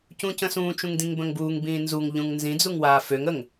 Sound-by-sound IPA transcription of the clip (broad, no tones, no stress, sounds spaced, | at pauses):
c ũ c ə̃ s ũː t͡ʃ ũ ŋ d ĩ ŋ b ə̃ ŋ b uː ŋ b ĩː n z u ŋ ʎ ũ ŋ n z ĩ d͡z u ŋ w aː f ø ŋ ə ŋ